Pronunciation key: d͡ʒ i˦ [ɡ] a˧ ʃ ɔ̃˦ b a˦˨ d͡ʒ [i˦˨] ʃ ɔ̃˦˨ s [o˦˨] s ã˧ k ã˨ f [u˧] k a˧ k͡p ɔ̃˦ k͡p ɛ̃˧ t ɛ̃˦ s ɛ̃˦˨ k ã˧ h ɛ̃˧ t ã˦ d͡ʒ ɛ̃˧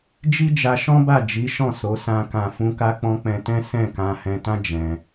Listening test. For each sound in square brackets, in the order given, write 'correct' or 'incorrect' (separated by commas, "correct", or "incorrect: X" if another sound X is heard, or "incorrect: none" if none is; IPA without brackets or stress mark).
incorrect: d͡ʒ, incorrect: i˨˦, incorrect: o˨˦, incorrect: ũ˧